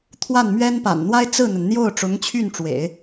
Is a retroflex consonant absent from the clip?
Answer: no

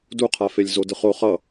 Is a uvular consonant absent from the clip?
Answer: no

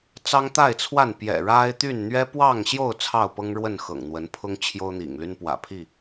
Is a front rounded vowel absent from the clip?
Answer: no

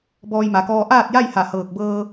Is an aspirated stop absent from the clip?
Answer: yes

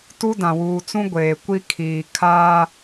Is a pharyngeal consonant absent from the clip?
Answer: yes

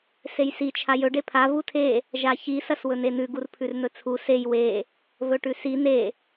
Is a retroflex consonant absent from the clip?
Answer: no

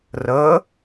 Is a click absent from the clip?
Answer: yes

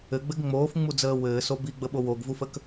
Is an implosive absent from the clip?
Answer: no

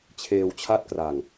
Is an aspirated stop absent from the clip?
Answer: no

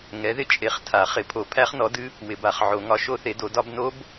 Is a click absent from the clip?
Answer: yes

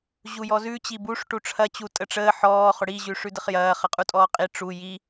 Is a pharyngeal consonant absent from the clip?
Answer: no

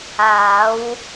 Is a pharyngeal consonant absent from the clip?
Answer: yes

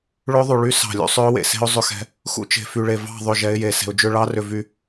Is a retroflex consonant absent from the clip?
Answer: no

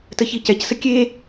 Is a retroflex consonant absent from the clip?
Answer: yes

